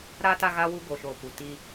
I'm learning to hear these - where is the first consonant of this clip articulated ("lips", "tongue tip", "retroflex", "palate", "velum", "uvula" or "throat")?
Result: tongue tip